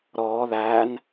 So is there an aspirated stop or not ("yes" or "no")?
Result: no